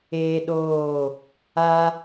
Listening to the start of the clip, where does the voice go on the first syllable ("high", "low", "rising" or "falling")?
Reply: high